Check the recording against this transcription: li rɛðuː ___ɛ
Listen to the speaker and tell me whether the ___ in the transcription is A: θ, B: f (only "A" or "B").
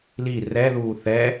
A